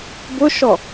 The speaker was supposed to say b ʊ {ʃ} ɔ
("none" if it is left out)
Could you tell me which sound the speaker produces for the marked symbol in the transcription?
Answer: ʃ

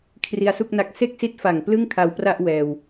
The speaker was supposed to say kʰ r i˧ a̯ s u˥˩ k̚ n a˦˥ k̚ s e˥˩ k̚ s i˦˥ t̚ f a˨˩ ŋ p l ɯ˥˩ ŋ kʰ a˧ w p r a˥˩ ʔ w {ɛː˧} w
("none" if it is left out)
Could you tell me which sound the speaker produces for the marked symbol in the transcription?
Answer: ɛː˧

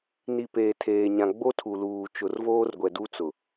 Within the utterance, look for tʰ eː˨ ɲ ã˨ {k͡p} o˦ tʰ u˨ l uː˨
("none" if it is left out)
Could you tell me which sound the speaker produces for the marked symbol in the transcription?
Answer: ɡ͡b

